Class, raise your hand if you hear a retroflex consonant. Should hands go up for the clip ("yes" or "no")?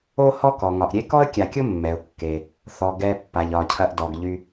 no